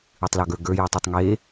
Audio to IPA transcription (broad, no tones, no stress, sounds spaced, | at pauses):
ɨ tˤ l ɔ ɡ ə˞ ɡ ə˞ j ɯ tˤ ɯ tˤ ŋ e